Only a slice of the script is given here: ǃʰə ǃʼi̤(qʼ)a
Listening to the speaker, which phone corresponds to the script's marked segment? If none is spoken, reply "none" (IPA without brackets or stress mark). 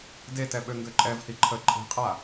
qʼ